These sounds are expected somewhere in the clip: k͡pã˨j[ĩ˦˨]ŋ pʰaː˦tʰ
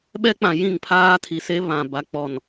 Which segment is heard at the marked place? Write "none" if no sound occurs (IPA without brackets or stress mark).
ĩ˦˨